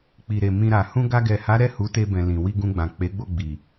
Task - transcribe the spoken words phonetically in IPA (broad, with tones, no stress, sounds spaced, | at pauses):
k͡p i˨ ɾ e˨ m ĩ˧ ɾ a˨ h ũ˧ ɡ a˧ ɡ ɛ˨ h a˨˦ ɾ ɛ˦˨ h u˨˦ t e˧ b ɛ̃˨ l ĩ˨ w i˧ ɡ ũ˧ ɡ͡b ã˨ k͡p e˨˦ ɡ͡b o˦˨ ɡ͡b i˨